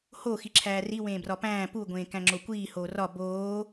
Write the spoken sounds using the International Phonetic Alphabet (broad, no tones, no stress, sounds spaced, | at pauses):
h o x i ǁʰ æː r i w ẽː b r ɒ p æ̃ː p u ɡʷ ẽː k æ̃ ŋ͡ǁ o kʷ iː h oː r ɒ b oː